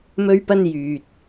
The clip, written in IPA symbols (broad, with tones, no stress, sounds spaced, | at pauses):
m ɵ˥ ɥ p ɐ˥ n j yː˨ t̚